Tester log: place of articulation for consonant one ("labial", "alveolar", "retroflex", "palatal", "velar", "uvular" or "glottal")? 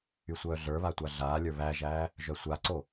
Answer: alveolar